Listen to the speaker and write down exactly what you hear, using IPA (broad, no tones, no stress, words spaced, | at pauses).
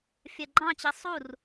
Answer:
fʲɜɡ͡ǃɑ̃t͡ɕi sˤur